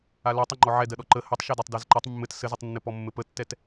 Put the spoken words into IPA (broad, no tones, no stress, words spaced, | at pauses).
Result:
alatˤ ɔŋ͡ǃɔʕɛ dɜɗɔǃə hɘtˤ ʃɛdɜtˤdɜzǃɜtˤ mːɘt sɘzɘtˤnːɘ pɔmːɘpətːɛt